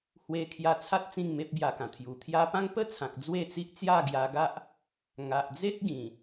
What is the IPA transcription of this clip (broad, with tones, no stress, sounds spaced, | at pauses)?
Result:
h w e˧ kʰ j a˧ t͡sʰ a˦ t̚ t͡s ĩ˥˧ ŋ m e˦ p̚ b j a˧ k ã˨˩ t̪ʰ j u˨˩ t̪ʰ j a˦ p ã˦ ŋ p ə˥˧ t͡sʰ ã˨ k̚ d͡z w e˥˧ t͡s i˦ ʔ t͡s j a˥˧ ɡ j a˧ ɡ a˦ ʔ | ŋ a˨ ʔ d͡z e˦ t̚ ɡ ĩ˨˩